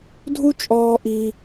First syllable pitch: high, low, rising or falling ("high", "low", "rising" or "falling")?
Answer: high